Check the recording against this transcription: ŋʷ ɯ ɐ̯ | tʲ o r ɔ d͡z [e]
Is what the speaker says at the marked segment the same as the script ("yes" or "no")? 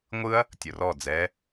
no